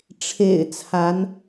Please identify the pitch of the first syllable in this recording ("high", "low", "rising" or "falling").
low